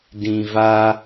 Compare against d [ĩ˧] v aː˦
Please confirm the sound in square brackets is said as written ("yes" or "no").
yes